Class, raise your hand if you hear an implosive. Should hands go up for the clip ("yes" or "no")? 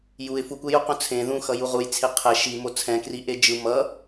no